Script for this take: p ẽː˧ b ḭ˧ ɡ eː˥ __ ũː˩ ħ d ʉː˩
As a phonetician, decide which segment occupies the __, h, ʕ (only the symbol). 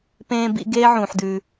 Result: ʕ